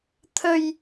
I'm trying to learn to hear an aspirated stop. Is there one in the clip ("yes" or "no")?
yes